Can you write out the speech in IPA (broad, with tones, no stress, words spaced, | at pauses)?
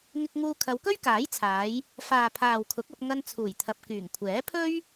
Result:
ŋɪ˧k̚ŋuː˧ kʰɐ˨˧wkɵ˥ɥkaː˨˥jt͡sʰaː˨˧j | faː˨pʰaː˨wkʰʊ˨˥k̚ɐ˧p̚ ŋɐ˧nt͡sʰuː˨˩jt̪ʰɐ˨p̚ kyː˨˩ŋkʷʰɛː˨˥ pʰɵ˥ɥ